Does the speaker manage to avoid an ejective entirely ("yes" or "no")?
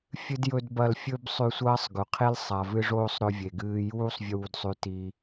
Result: yes